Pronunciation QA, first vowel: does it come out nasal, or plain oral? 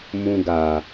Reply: nasal